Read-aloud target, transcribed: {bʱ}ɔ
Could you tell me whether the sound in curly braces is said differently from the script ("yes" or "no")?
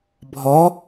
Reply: no